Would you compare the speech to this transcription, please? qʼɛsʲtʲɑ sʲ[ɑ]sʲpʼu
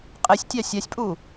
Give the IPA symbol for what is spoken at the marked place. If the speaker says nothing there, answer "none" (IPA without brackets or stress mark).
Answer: a